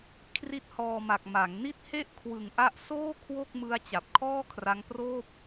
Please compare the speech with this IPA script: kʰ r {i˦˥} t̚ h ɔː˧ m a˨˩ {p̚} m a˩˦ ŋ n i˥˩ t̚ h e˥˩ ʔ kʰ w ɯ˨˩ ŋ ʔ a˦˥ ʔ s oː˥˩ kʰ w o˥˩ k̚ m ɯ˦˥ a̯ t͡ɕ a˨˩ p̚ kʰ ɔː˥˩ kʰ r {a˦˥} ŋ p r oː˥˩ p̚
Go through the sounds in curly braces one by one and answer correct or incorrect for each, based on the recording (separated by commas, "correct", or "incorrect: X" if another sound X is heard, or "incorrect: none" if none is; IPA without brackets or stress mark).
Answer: correct, incorrect: k̚, correct